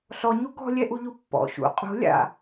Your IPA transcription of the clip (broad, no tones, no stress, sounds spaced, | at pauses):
ɬ ɔ ɲ u ɡ ɔ̤ lʲ ɛ ʔ u ʎ u pː ɔ̰ ɕ ṵ qʼ o̤ lʲ a̰